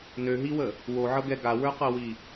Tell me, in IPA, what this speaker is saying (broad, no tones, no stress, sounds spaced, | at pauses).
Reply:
n ø ɦ i w ə | w o ʕ ɤ ɡ ɛ ɡ a w ə˞ q ɤ w i